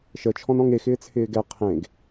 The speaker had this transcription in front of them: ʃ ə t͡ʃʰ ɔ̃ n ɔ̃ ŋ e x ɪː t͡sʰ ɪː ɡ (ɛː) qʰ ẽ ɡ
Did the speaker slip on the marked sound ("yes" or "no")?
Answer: yes